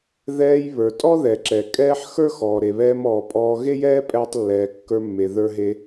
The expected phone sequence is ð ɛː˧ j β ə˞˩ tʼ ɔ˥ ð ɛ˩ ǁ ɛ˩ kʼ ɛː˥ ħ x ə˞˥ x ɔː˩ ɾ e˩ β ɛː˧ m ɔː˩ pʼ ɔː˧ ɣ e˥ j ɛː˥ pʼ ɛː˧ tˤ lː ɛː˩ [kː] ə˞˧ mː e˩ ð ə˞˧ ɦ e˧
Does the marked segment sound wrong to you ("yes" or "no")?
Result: no